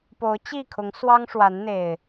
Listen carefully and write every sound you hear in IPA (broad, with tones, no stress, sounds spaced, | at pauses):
p o˨˦ ʊ̯ t͡ɕ i˥˨ kʰ ʊ˨˦ ŋ s w ɑ˦ ŋ ʂ w a˨˦ n n̪ e˨˩ ɪ̯